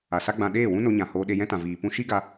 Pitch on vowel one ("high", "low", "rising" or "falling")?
low